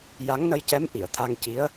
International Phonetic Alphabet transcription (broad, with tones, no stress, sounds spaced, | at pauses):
j a˧˥ ŋ n ə˧ j c ɛ˧˥ m ʔ i˨˩˨ ə̯ t̪ʰ a˧ ŋ c i˧˥ ə̯